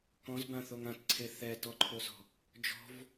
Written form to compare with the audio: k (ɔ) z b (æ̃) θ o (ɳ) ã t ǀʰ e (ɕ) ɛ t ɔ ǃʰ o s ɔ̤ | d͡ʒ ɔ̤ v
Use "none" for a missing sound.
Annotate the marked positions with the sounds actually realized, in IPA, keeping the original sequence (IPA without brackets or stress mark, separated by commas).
ɔ̃, ã, ŋ, θ